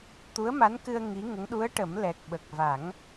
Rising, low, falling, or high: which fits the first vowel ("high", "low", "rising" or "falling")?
rising